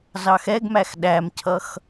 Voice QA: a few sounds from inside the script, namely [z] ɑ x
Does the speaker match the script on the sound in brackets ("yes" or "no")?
yes